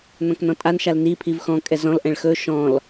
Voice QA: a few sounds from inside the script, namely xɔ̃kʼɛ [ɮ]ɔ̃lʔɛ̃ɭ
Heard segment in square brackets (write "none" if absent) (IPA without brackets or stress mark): z